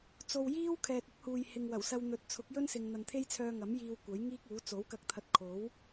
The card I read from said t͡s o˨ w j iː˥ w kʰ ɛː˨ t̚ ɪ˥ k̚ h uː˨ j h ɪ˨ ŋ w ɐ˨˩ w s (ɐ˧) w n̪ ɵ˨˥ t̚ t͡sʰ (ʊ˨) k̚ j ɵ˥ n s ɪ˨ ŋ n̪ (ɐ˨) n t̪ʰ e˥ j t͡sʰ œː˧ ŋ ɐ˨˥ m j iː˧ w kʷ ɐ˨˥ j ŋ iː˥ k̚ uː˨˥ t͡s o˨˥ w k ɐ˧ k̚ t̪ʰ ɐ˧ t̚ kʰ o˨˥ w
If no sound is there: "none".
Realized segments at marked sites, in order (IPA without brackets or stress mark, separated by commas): ɐ˧, ʊ˨˥, ɐ˨